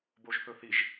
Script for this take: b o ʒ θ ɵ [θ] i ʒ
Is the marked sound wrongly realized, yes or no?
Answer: no